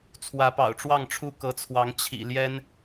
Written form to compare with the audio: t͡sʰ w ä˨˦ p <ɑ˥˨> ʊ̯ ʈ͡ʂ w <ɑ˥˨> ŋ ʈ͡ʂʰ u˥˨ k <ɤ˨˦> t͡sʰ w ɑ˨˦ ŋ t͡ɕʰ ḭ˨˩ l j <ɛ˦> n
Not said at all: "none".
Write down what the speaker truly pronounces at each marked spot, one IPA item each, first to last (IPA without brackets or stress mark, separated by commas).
ɑ̰˨˩, ɑ˥˨, ɤ˨˦, ɛ˦